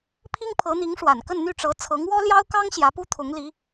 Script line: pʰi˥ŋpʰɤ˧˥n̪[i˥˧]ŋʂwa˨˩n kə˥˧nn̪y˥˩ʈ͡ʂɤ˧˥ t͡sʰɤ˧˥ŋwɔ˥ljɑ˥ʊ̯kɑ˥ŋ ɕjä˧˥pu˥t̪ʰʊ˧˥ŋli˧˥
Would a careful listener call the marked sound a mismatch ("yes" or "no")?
yes